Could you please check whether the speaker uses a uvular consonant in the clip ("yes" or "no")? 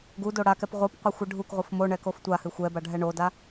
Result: yes